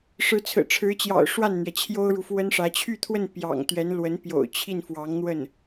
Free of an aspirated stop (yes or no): no